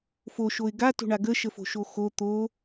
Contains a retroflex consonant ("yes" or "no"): yes